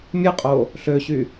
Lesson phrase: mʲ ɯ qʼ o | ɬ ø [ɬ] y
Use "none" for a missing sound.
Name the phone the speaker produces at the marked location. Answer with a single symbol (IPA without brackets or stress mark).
ɕ